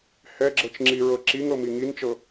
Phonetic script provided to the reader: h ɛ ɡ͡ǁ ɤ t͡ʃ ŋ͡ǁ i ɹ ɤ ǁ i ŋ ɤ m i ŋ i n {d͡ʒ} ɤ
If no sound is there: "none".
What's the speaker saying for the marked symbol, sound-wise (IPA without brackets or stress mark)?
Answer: t͡ʃ